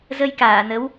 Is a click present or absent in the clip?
absent